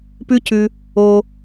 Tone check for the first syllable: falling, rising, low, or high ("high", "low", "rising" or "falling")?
high